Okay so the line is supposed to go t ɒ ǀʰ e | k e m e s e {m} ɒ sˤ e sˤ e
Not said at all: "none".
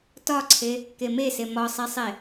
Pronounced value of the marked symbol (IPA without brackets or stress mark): m